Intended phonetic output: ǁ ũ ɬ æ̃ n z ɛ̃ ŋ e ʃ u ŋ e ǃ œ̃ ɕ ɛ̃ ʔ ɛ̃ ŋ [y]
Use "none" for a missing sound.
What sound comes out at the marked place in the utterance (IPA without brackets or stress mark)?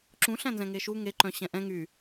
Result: y